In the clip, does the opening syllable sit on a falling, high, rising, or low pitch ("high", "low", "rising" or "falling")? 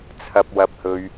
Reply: low